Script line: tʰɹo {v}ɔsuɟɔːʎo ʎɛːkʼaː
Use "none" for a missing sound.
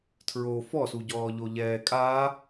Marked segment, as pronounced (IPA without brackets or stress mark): f